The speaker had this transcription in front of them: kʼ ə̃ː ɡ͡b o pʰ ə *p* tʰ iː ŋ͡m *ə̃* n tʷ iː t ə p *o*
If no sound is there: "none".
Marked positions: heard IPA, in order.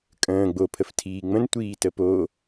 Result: f, ə̃, o

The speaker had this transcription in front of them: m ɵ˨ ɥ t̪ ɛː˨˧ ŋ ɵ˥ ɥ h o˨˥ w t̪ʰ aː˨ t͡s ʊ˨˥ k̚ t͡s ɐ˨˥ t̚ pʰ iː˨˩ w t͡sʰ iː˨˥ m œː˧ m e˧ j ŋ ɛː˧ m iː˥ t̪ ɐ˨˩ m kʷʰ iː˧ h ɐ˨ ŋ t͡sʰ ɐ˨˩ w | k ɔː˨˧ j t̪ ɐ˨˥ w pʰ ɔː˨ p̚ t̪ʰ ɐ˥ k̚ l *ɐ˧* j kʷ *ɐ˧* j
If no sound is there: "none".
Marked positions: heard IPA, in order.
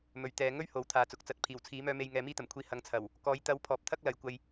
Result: ɐ˨˥, ɐ˧

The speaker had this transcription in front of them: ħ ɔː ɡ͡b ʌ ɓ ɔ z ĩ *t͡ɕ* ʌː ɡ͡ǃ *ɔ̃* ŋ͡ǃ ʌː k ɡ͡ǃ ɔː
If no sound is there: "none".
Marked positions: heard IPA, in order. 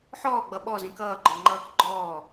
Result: k, ɔ

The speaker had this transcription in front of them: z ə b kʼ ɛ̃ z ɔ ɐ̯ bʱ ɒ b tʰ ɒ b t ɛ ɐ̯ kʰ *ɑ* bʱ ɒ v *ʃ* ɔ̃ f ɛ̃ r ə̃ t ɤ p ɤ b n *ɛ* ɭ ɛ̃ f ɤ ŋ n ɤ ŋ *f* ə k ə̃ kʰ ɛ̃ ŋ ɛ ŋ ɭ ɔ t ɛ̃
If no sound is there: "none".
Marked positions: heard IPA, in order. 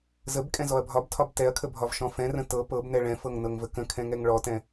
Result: ə, ʃ, ɛ, v

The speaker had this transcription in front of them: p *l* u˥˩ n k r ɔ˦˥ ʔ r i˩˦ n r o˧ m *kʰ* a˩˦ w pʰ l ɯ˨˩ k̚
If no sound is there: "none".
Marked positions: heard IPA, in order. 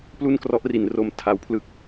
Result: l, tʰ

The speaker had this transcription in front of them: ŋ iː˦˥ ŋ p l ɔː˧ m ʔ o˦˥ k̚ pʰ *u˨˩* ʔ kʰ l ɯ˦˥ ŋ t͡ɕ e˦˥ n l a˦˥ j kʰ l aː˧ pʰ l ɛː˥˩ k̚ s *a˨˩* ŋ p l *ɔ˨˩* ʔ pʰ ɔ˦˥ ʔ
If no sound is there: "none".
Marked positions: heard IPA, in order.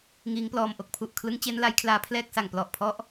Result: u˨˩, a˨˩, ɔ˨˩

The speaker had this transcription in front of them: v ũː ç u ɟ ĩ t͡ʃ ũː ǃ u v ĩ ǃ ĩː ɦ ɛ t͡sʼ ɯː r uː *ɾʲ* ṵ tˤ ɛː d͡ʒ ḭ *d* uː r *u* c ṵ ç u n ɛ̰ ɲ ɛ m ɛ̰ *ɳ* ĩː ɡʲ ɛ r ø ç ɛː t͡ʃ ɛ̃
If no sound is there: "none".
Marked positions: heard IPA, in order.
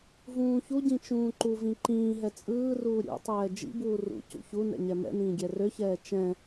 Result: ɾʲ, b, ṵ, n

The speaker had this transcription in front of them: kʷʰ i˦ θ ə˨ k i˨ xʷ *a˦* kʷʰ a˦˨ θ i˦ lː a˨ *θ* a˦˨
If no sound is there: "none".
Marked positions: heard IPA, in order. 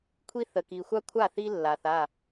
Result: a˦, θ

